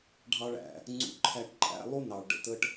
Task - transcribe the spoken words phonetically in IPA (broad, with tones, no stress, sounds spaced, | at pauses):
ɖʱ ɑ˦ ɭ æ̰˩ | ŋ͡ǀ ṵ˦ ǃʰ æ˦ ʈ ǃʼ æ̰˦ lˠ u˥ n ɑ˩ ɭ ɖ ə̰˨ t ə˦ ʈ